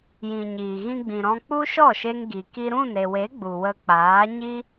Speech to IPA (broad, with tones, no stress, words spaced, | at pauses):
jĩ˨ɲiː˨ɣĩ˧ ɡ͡bĩ˨ɾɔ̃˧k͡pu˦ ʃɔ˦˨ʃe˧ŋɡi˨ ki˧ɾũ˦˨nɾe˨we˨˦ ɡ͡bu˨wə˧k͡paː˨˦ ɲi˦